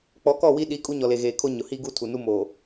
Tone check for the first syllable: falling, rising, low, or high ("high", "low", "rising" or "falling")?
rising